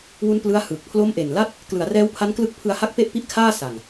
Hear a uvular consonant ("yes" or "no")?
no